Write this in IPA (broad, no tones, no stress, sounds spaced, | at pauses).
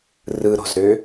r ɯ ɾ o̤ z ɾ ø